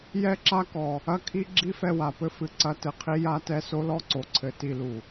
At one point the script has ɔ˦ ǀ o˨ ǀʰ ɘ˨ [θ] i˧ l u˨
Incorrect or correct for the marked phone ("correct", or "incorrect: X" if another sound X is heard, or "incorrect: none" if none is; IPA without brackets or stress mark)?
incorrect: t